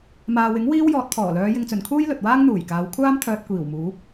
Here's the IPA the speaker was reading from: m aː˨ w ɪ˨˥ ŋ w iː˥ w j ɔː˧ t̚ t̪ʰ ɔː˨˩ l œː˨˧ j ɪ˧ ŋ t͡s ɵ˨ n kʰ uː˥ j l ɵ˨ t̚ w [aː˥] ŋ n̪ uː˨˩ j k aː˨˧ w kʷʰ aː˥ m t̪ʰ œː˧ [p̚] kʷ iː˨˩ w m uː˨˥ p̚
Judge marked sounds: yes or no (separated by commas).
yes, no